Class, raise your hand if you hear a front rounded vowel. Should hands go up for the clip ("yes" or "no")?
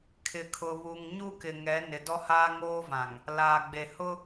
no